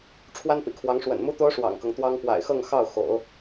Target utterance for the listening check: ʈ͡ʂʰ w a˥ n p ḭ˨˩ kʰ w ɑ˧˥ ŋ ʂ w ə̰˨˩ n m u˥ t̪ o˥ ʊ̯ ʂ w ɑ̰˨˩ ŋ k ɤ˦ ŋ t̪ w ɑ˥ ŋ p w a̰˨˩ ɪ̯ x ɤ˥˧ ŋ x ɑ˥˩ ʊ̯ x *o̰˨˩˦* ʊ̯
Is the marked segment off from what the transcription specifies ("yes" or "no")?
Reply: no